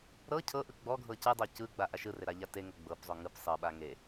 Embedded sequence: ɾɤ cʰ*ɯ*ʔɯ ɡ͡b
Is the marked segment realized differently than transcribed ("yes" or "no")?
yes